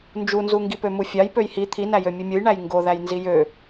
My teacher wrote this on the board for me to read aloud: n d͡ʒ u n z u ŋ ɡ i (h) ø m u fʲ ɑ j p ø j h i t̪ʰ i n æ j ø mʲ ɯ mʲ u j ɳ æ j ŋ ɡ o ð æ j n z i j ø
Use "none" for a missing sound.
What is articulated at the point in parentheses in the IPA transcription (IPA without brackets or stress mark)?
p